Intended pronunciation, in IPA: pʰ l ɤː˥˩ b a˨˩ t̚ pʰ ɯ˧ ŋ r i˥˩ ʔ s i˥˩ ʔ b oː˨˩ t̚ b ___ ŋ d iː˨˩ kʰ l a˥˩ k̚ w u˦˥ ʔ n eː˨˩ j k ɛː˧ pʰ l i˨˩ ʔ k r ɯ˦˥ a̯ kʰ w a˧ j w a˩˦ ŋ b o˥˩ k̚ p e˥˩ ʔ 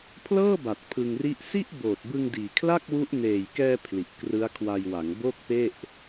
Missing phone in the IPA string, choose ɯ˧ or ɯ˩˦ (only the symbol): ɯ˧